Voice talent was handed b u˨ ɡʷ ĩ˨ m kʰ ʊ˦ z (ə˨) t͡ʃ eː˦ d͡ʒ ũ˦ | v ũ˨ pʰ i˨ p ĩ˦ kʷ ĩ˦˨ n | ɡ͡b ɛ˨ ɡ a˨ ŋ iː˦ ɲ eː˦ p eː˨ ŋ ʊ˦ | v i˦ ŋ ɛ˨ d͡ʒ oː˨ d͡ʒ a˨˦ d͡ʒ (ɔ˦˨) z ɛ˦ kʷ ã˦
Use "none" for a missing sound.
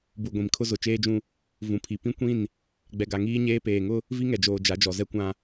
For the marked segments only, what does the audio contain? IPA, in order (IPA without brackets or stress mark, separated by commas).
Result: ʊ˨, ɔ˨